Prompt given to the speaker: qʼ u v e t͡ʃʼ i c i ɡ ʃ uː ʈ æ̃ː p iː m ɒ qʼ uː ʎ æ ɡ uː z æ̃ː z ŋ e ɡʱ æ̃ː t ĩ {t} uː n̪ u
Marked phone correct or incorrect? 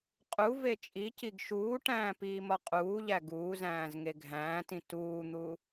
correct